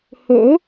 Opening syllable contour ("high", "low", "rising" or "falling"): rising